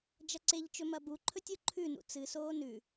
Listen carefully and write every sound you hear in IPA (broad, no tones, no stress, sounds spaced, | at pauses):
d͡ʒ ɐ ǀ e ʎ t͡ʃ ɵ m ɐ b u ǃʰ ɵ tʲ o ǃʰ ʉ n ṵ t͡s ɨ s oː n ʉ